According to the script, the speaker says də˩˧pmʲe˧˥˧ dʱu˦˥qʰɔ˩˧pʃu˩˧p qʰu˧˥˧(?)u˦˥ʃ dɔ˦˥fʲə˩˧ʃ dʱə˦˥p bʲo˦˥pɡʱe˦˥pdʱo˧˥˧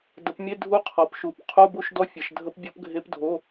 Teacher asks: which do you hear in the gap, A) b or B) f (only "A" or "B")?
A